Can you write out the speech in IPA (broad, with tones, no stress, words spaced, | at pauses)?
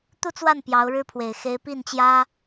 t̪u˥˧t͡swa˥˩n pjɑ˧˥ʊ̯ɻɻ̩˥pʰwe˨˩ɪ̯ xe˧˥ɪ̯pi˥˩nt͡ɕjä˥